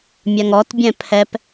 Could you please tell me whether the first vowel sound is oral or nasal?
oral